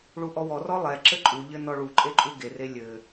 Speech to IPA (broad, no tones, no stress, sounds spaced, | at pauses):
ɭ u ʔ ɔ w ɔ r ɔ lˠ ɛ ǁ ɘ ǃʼ u ʎ ɘ n ɔ ɭ u ǃʼ e ǃʼ u ɡ e r e lʲ ɘ